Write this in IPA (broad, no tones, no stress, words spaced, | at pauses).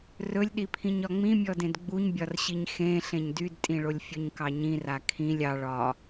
rɵlʲɗipʰĩɲ ɒŋ͡mĩmʲɔdẽd ɡ͡buɲbʲɒrɕiɲ xẽ ɬẽɲdydtʼĩɭolʲ fʲɵɲkɑɲĩra kʰĩlʲ ɑ ɭɒ